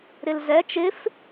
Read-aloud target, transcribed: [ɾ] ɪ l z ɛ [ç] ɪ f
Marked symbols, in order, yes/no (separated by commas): yes, no